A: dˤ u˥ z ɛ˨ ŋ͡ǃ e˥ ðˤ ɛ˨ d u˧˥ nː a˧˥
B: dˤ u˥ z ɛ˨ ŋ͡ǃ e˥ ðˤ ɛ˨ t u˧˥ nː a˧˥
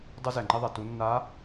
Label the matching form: B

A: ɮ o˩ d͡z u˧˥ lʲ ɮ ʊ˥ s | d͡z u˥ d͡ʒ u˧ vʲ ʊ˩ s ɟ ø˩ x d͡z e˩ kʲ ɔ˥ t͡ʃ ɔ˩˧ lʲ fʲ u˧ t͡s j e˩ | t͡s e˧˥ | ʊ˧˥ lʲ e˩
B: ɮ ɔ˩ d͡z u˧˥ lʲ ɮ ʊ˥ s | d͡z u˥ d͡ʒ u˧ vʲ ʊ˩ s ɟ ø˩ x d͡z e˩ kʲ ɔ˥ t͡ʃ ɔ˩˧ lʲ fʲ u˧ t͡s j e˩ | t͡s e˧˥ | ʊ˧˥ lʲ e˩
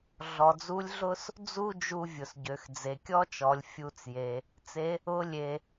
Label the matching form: B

